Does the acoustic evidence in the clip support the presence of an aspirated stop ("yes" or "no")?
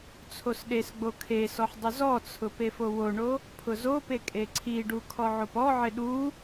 yes